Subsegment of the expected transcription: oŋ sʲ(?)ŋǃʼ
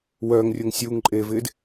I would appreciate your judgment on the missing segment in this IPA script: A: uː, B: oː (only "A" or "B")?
A